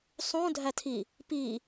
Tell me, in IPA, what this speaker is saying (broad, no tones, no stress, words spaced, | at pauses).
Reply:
sˤũ dʱætʰi | pi